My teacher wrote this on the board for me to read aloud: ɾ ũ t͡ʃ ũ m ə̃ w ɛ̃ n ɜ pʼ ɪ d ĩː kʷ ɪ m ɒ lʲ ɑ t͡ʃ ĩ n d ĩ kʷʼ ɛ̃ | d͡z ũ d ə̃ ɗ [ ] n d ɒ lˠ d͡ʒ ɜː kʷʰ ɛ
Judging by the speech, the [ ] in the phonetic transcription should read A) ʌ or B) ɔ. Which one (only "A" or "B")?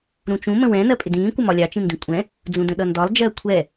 A